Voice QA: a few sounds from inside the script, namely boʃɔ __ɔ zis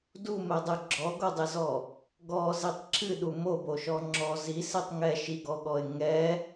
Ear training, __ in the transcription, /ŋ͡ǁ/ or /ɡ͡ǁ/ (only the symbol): ŋ͡ǁ